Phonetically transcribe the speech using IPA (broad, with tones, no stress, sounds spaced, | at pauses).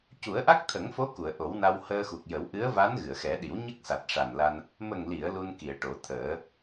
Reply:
c u˨˩˦ ə̯ ʔ a˦˥ k̚ t̪ʰ ə˨˩˦ ŋ f o˧˥ k u˨˩˨ ə̯ ʔ o˨˩˦ w n a˧ w h əː˧ x u˨˩ k̚ j ə˨˩˦ w ʔ ɨ˧˥ ə̯ v a˧˥ n ɣ ɨ˨˩˨ ə̯ x ɛ˨˩˦ ɗ i˨˩˦ w ɲ ə˦˥ k̚ s a˨˩ t̚ ʂ a˨˩ n l a˧ n | m ə˨˩ ŋ l i˨˩˨ ə̯ l u˧ n k i˨˩˨ ə̯ ʈ o˨˩˦ t̪ʰ əː˨˩˦